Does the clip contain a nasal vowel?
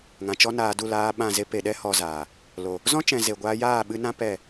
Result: yes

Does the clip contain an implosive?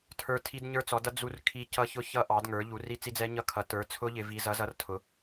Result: no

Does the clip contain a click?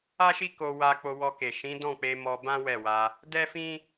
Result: no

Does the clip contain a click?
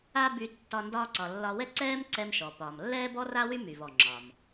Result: yes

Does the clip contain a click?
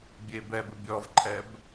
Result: yes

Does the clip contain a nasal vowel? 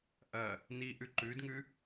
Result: no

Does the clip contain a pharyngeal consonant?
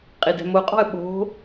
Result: no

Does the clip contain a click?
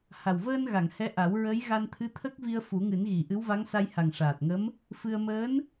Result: no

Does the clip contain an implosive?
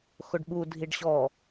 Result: yes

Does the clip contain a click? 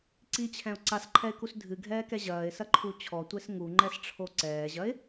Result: yes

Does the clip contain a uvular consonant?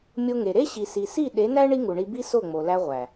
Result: yes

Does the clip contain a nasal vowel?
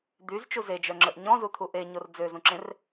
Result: yes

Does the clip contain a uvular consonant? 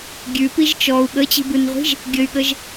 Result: yes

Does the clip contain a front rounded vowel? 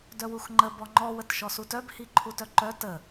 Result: yes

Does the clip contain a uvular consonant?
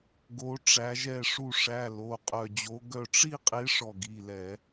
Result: yes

